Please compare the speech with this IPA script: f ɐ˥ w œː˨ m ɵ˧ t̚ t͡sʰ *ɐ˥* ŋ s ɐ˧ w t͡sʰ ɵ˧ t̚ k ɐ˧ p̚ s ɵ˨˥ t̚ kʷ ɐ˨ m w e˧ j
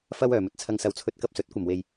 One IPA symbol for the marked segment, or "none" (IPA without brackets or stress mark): ɐ˧